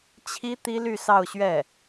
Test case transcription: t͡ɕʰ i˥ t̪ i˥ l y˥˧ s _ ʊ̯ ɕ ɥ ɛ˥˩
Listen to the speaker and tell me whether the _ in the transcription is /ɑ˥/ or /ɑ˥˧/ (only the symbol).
ɑ˥˧